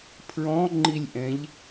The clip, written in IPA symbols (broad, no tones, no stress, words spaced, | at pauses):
pʰɹɔ̃ ŋ͡ǃilʲʔɛ̃ʎ